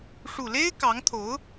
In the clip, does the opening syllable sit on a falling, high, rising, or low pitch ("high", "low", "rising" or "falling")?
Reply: low